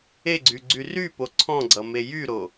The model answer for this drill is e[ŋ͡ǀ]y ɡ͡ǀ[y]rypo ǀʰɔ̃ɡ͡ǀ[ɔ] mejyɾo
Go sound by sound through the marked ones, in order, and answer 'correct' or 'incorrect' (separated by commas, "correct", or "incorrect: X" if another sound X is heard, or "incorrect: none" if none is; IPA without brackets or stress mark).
incorrect: ɡ͡ǀ, correct, incorrect: ʌ